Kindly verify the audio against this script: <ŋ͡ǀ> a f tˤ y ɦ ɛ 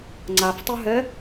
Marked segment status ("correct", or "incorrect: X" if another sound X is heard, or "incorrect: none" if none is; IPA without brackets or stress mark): correct